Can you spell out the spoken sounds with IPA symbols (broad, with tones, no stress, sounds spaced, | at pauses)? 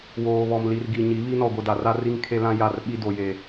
w oː˨ β ɔ˨ m l i˨ r ɡ i˨ ɲ i˨˦ β i˦ n ɔ˨ ɡʷ ɪ˨ d a˨ r a˦ r i˦ ŋ kʰ e˦ l ã˦ j a˦˨ r ɓ i˦ d o˨ j e˨